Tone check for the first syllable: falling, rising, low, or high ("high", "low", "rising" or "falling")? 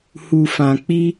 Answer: low